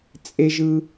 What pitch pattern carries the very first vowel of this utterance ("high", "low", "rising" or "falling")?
high